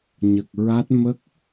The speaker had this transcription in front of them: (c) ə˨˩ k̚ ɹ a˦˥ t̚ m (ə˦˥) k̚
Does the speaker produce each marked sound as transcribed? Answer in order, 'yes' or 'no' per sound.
no, yes

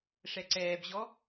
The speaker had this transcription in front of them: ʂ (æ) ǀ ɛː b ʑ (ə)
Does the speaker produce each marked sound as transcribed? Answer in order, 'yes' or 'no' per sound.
no, no

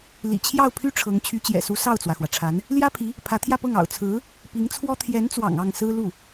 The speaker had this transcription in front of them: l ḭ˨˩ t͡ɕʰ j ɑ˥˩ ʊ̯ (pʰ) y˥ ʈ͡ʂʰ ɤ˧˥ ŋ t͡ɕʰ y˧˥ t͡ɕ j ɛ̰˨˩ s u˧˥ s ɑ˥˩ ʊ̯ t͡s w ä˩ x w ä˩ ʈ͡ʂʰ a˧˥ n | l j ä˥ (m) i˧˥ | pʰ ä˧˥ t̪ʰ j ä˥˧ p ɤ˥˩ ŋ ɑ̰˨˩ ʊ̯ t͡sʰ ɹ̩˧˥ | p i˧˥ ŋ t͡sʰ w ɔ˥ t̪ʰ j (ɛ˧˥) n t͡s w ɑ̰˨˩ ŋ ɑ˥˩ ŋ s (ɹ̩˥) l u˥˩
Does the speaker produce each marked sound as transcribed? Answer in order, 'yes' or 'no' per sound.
yes, no, yes, yes

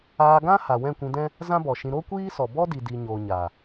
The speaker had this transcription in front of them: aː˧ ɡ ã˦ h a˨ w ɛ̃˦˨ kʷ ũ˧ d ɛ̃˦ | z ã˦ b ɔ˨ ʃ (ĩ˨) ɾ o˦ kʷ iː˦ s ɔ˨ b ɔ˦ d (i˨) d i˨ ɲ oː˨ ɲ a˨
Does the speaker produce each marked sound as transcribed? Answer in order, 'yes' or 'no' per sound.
no, yes

